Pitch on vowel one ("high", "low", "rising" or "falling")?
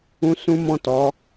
high